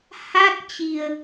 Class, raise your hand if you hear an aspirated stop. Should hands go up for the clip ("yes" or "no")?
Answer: no